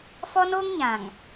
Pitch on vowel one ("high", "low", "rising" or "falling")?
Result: high